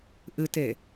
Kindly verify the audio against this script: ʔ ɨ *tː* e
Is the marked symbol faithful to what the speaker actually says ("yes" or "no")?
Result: no